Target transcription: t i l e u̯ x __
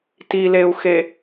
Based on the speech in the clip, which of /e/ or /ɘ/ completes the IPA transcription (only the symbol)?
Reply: e